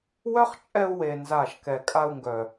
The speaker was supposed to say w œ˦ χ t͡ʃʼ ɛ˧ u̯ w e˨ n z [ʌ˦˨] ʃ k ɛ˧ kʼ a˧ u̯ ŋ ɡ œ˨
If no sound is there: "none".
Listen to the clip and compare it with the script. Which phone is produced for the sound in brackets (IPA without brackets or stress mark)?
a˦˨